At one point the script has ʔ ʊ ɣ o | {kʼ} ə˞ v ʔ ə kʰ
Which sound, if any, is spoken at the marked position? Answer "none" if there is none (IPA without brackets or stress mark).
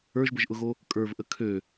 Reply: kʼ